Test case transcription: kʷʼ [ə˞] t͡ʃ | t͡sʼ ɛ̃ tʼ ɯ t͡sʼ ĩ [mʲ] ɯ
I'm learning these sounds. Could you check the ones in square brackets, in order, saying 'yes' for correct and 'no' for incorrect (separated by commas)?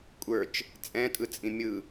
yes, yes